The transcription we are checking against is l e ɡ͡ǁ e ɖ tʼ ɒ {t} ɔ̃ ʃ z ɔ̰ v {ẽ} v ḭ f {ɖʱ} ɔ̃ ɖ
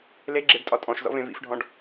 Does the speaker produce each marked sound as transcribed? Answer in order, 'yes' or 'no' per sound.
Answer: no, yes, yes

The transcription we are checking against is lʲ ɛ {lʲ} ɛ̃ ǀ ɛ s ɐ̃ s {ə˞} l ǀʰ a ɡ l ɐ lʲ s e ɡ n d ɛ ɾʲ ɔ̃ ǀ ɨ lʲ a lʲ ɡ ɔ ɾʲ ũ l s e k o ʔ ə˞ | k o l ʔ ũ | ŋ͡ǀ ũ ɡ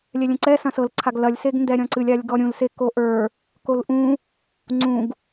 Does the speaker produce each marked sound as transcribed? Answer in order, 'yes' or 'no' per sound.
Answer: yes, no

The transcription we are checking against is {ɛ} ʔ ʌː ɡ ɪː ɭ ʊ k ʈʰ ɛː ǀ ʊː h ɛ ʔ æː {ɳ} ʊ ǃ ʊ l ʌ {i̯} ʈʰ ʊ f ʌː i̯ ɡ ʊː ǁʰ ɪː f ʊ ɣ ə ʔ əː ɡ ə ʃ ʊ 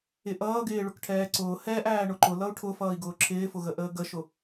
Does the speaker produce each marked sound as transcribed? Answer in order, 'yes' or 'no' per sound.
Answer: no, yes, no

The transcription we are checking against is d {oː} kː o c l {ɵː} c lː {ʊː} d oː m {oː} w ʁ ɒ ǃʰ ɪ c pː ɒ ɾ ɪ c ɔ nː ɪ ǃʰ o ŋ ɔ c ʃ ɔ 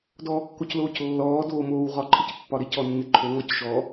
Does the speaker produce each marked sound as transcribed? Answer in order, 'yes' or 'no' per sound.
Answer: no, no, no, yes

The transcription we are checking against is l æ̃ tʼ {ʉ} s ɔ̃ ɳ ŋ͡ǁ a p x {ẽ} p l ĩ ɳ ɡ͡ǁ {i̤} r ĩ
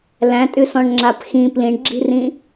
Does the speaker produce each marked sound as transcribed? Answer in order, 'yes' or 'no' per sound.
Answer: yes, no, yes

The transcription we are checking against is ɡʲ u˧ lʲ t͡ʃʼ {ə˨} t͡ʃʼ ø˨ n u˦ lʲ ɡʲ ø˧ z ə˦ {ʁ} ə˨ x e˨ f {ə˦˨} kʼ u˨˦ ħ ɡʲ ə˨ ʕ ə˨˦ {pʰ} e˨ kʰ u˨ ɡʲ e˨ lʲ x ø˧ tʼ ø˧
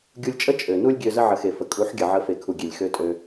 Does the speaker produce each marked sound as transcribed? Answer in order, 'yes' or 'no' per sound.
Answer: no, no, no, no

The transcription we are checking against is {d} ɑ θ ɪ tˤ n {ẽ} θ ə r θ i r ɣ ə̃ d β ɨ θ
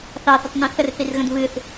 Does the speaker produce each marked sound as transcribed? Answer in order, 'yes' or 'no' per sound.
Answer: no, yes

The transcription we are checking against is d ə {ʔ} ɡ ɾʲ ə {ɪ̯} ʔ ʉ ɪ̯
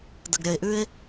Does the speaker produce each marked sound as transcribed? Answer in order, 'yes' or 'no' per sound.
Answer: no, yes

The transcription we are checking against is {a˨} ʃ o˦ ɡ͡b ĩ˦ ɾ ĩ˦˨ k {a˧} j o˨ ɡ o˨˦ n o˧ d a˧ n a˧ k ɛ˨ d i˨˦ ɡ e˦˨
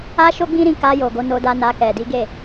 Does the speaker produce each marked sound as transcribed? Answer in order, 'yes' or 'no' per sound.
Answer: no, yes

